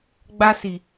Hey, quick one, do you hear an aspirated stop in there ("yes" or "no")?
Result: no